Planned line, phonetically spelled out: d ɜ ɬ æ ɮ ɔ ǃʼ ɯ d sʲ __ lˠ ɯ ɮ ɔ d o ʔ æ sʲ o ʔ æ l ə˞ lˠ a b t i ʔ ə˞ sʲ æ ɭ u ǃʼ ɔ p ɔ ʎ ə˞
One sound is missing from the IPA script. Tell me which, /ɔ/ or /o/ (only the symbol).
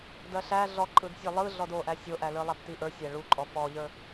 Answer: ɔ